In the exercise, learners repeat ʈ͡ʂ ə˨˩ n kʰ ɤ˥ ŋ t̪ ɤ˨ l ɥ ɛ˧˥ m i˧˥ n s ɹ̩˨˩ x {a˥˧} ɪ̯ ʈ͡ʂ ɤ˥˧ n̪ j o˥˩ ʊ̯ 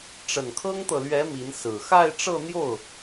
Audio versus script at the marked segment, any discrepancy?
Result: no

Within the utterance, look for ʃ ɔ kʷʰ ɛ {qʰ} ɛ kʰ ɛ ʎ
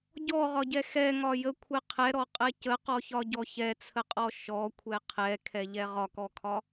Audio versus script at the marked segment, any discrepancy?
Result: no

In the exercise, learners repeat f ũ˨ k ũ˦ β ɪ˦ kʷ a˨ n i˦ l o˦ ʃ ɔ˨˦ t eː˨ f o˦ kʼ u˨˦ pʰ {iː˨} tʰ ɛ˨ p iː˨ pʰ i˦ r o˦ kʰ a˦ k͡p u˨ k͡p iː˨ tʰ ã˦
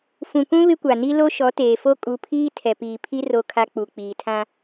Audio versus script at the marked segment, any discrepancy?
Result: yes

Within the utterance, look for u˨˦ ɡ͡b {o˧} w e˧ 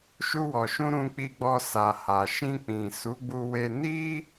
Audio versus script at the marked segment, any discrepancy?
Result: yes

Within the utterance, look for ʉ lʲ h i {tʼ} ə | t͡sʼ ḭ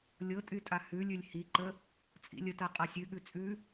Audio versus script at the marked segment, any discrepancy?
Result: yes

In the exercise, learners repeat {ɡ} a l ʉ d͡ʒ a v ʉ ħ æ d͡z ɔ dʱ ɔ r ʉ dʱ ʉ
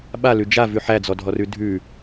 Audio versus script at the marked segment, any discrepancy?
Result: yes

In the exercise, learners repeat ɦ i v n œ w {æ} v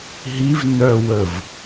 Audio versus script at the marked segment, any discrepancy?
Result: yes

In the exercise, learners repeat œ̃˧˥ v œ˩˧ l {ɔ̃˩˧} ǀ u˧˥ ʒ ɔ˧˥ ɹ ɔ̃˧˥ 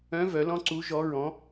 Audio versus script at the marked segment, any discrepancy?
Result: yes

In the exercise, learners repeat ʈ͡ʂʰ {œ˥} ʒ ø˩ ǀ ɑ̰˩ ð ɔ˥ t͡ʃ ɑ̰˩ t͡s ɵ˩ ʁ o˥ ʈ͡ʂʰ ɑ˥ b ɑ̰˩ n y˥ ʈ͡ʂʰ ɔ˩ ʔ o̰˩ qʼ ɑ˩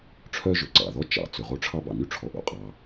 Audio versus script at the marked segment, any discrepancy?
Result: no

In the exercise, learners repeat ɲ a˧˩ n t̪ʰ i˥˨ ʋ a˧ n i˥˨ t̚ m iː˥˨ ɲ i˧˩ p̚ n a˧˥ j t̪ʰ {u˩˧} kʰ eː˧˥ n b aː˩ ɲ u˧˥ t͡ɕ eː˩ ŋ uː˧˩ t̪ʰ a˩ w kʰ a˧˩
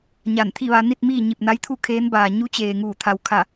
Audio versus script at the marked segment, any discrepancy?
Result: yes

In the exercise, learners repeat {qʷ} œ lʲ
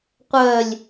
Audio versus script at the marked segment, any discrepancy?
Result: no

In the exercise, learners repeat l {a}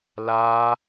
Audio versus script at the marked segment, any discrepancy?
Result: no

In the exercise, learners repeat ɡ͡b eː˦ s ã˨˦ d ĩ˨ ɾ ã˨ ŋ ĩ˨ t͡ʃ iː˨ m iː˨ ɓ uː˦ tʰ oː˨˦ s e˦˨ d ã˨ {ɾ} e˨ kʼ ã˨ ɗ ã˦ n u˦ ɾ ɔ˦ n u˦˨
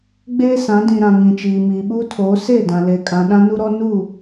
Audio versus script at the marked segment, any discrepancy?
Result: yes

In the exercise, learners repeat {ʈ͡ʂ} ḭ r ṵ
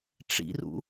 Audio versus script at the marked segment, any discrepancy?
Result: no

